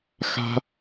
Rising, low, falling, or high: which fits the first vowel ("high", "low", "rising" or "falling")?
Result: high